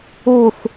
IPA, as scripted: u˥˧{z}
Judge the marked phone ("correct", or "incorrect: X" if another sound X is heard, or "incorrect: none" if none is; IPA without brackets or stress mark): incorrect: θ